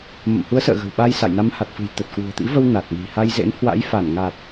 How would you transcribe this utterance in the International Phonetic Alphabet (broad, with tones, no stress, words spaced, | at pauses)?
mə̰˧˨mhu˨˦ə̯sə̰ː˧˨ ɣə̤˨˩wɓa˧j sa̰˧˨jna˨˦mha˨˩t̚fɨ̤˨˩j t̪ə˨˩t̚kwṳ˨˩ə̯t̪ḭ˧˥və˧w na˨˩t̚ni̤˨˩ha˧j zḛ˧˥nhwa̰˧˥jfa˧˩nŋa˨˩t̚